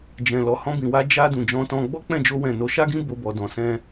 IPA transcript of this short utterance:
d͡ʒ ɛ̃˨ l ɔ˨ h ɔ̃˧ b ĩ˨ w a˧ d͡ʒ a˧ d ũ˨ d͡ʒ ɔ̃˧ t ɔ̃˧ ɡ͡b ɔ˦ k͡p ɛ̃˦˨ d͡ʒ o˧ w ɛ̃˨ n o˨˦ ʃ a˦ ɡ ĩ˦ b o˧ b ɔ˨ d ɔ̃˨ s ɛ̃˧

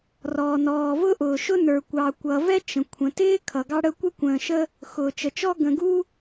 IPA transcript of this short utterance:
r ɔː˩ n ɔː˩ v ʊ˥ ʔ ʊː˩ ʃ ʊ˥ n ə˞˩ kʷ ɑ˩ kʷ ʌ˩ v ɛ˥ t͡ʃ ə̃˩ kʷʰ ə̃˩ t ɪː˥ kʰ ʌ˩ ɡ ɑ˥ ɽ ə˥ kʷ ɛ˥ kʷ ə̃ː˩ ʃ ə˥ | x ʊː˩ t͡ʃ ə˩ t͡ʃ ɔ˥ ɡ ə̃˩ ɡ u˥

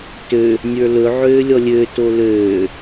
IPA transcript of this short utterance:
t ø | nʲ ə˞ l ɵ ʕ øː lʲ ɔ lʲ ø t o l øː

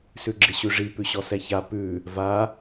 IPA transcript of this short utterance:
s ʉ ɡ͡ǁ ɪ ɕ ʉ ʐ i p ʉ ɕ ɔ s ɛ ç a p ʉ | v a

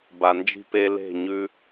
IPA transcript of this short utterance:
b a˨ n d͡ʒ i̤˧ p e˧ l e̤˦˨ ɲ ʉ˦

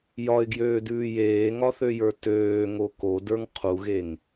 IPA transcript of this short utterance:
j ɒ ɪ̯ ɡ j øː d ʉː j eː ŋ ɒ θ ø j ə˞ t øː ŋ o k o d ə˞ ŋ qʰ u ɣ e ŋ

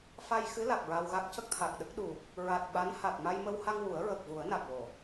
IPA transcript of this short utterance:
f a˧ j x ɨ˧˥ l a˨˩ k̚ ɹ a˧ w ɣ a˦˥ k̚ c ə˦˥ k̚ t̪ʰ a˨˩ k̚ ɗ ə˦˥ k̚ ɗ u˨˩ k̚ | ɹ a˨˩ t̚ ɓ a˧˥ n h a˨˩ t̚ m a˧ j m ə˧ w h a˧ ŋ w u˨˩˦ ə̯ ɹ ə˨˩ k̚ v u˨˩˦ ə̯ n a˨˩ k̚ w o˨˩˨

